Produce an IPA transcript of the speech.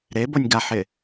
ɾ e b o nʲ ɡ a ħ ɪ

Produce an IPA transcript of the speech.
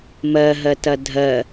m ɜ ɦ ɜ t ɐ dʱ ɜ

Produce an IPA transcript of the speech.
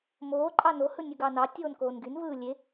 m oː ǃʼ ɑ n o h ɯ nʲ ɯ ɡ ɑ n ɑ tʲ oː n k oː n ɡ y n v ɯː lʲ e

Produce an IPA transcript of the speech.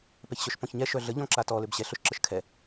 p ɛ ç ɕ œ ʃ p ɔ̃ ç ɲ ɛ ʃ œ ɮ ə ʎ ɔ̃ ǁ a t ɔ l ø b ɕ ɛ ɬ œ ʃ ǁ ə ʃ kʰ ɛ

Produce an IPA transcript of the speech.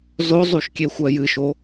z o zˤ u ʃ kʲ e xʷ ɜ j ɨ ʃ o

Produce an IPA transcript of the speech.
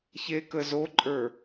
ç e k ə z o ǃʼ ə˞

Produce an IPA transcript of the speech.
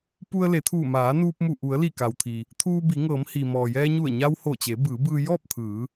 p u˧ ə̯ l e˩˧ t̪ʰ uː˧˩ m aː˩˧ n uː˧ p̚ m u˧˩ ʔ u˩˧ ə̯ l i˧˩ k a˩ w t̪ʰ i˩ | t̪ʰ uː˧ b i˩˧ ŋ ɤː˩˧ m h iː˩ m ɔː˩ j ɛː˧ ɲ u˧˩ ə̯ ɲ a˧ w h o˧˩ t͡ɕ e˩˧ b ɯː˩˧ b ɯː˧ j ɔː˥˨ p̚ t̪ʰ ɯː˩˧

